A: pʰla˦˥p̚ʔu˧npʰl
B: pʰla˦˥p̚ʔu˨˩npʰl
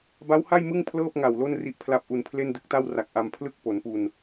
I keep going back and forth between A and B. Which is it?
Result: A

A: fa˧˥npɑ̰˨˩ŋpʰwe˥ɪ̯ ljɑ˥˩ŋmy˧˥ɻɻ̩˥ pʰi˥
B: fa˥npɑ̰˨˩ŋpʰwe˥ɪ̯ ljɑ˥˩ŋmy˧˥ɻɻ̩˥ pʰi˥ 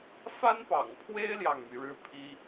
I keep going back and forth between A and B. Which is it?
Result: B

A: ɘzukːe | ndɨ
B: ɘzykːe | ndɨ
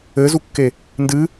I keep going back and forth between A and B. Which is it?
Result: A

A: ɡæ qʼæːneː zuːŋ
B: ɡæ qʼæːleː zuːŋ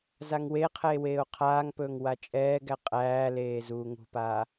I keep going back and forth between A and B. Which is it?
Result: B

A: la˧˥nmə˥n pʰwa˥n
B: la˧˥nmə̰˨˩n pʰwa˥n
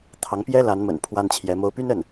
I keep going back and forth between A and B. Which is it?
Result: B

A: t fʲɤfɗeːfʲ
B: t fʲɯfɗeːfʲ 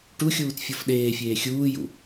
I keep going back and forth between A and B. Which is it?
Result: A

